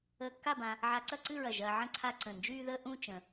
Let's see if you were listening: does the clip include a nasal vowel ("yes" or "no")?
yes